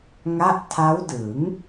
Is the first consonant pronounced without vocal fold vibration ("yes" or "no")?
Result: no